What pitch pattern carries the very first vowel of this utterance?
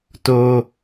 high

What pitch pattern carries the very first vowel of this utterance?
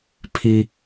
high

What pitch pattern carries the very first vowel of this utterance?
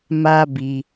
high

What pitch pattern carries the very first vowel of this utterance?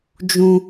high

